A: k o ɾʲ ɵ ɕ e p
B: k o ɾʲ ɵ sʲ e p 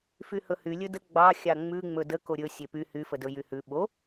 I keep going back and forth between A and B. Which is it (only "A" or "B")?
B